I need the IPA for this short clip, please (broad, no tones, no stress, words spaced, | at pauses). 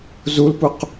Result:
zulpuq